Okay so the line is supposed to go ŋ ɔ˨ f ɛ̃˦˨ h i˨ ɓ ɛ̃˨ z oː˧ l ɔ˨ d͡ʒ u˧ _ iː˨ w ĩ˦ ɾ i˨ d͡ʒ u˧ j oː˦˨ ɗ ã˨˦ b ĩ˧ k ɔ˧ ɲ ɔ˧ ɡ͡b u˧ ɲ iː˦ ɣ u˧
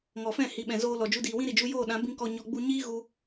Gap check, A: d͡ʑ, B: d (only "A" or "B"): B